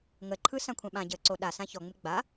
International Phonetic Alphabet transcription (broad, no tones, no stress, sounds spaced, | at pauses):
ŋ ə ǃʰ ɯ s ã kʷʰ ɛ̃ ɓ ã ɟ əː ǀ o ɗ a s ã ç ɔ ŋ͡m ɪ ɡ͡b a